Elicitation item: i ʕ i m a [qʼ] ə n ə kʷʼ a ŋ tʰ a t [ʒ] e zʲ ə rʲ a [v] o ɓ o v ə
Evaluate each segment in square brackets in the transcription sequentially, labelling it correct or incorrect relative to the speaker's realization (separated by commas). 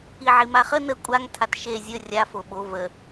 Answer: incorrect, incorrect, incorrect